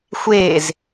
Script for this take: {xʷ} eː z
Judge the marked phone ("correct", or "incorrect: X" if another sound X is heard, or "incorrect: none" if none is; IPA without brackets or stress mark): correct